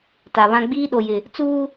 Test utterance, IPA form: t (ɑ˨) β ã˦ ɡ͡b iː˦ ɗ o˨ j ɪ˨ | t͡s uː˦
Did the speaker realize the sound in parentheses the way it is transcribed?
no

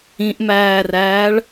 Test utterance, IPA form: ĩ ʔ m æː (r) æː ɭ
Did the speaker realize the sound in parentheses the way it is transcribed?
yes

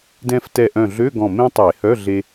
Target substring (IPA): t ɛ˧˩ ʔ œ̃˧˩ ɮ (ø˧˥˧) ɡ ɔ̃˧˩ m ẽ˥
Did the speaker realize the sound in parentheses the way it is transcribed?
yes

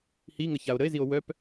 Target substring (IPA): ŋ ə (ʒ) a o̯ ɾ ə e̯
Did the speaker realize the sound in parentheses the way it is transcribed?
no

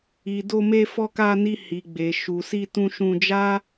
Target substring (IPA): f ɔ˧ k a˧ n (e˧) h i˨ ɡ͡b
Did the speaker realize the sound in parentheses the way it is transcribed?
no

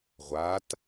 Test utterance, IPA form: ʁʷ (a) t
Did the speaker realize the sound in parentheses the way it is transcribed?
yes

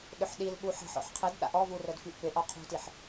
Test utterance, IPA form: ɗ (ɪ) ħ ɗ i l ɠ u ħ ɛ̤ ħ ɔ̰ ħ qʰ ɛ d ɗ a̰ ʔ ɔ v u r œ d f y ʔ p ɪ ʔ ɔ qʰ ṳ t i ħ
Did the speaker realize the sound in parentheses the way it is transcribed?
no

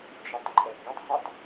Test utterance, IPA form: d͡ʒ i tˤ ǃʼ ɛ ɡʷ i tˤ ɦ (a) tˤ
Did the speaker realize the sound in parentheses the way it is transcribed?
yes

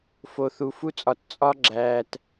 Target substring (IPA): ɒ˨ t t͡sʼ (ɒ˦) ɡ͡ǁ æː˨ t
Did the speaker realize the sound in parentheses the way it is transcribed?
yes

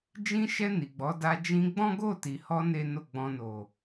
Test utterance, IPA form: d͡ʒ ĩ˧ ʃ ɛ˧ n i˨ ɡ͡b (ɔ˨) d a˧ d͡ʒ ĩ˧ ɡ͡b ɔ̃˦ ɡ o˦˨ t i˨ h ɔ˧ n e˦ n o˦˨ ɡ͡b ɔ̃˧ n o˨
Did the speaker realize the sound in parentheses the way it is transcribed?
no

